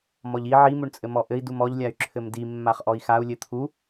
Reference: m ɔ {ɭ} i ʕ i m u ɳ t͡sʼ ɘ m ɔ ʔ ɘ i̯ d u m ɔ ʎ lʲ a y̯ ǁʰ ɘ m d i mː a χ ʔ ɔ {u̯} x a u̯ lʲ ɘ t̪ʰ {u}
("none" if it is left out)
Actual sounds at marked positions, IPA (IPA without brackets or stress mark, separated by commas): ʎ, i̯, u